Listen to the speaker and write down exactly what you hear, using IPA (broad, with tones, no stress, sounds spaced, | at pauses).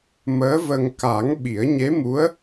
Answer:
m əː˧˥ v ə˧ ŋ k a˨˩˦ ŋ ɓ i˨˩˦ ə̯ ɲ e˧˥ m u˧˥ ə̯